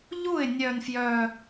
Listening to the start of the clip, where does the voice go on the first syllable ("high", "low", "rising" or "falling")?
falling